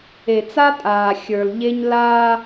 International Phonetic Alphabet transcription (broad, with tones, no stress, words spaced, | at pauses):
e˨t͡sa˦tʼaː˨ xʲə˞˨lʎe˦ɲ la˦